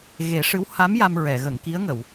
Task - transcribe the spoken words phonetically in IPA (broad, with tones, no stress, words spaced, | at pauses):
ɣe˨˩˦ʂɨ˧˥w ha˧˥m ja˧mɹɛ˨˩˨ ɣə˨˩˨ŋki˧˥ə̯ŋə˨˩˨w